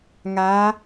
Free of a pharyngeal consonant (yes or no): yes